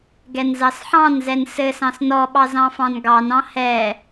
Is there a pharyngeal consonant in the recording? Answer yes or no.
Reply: yes